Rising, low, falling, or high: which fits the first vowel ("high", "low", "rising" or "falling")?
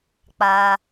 high